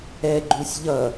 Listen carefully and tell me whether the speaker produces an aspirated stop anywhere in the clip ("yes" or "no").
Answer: no